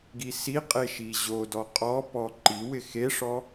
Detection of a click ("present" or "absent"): present